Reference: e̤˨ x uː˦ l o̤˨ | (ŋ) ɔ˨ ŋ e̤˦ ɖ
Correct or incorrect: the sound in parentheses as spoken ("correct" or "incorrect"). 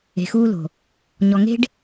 incorrect